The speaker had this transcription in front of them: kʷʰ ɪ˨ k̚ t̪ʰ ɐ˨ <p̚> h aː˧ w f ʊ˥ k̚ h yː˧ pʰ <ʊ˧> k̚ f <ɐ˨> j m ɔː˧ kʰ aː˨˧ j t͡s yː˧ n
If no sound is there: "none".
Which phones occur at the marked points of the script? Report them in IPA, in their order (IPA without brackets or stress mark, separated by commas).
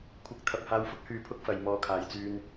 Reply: p̚, ʊ˥, ɐ˨